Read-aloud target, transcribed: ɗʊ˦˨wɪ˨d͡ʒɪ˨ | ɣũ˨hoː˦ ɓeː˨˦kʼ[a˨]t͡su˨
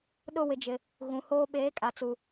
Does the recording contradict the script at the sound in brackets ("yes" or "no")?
no